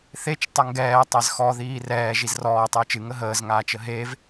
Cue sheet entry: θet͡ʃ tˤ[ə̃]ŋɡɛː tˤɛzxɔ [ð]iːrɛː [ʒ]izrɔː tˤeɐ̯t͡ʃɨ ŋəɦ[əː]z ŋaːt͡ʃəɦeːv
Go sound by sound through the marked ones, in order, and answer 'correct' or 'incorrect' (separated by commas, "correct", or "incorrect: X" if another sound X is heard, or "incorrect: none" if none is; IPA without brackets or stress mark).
incorrect: ə, correct, correct, correct